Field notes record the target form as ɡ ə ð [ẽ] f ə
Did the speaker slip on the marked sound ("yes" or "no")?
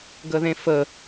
no